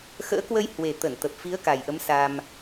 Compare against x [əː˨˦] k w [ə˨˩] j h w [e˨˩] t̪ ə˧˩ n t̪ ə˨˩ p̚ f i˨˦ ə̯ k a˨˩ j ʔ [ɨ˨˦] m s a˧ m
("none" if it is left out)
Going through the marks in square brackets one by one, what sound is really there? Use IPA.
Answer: ə̰ː˧˥, ə˧, e˨˩, ə˨˦

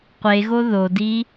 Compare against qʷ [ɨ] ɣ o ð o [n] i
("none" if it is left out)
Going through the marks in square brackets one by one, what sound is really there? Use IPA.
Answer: e, d

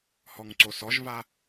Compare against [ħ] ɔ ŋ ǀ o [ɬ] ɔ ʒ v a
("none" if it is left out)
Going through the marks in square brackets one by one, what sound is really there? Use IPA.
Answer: h, s

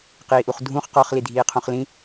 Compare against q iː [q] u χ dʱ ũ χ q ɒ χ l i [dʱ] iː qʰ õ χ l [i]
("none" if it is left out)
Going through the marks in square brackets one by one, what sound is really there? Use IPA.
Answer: ʔ, dʱ, ĩ

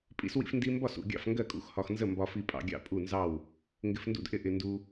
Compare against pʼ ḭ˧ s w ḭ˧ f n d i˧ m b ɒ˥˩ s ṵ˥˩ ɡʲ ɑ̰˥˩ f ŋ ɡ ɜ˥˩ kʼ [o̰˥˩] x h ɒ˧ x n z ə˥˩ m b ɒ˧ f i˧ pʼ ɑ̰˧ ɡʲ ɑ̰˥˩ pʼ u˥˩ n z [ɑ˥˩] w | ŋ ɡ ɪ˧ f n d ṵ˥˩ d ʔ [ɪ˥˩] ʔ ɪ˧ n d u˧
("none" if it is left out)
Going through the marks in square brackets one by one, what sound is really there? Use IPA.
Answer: ṵ˥˩, ɑ˥˩, ɪ˥˩

